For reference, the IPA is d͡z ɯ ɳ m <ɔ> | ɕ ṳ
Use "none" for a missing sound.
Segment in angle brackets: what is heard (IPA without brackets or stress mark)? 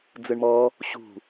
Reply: ɔ